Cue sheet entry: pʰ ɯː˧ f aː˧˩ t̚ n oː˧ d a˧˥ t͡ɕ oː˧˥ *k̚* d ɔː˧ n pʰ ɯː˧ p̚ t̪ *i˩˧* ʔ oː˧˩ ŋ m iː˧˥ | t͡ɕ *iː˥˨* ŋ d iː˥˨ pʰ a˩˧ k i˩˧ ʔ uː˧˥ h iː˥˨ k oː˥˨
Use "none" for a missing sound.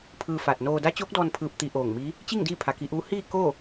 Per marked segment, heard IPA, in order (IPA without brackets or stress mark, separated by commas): k̚, i˧, i˥˨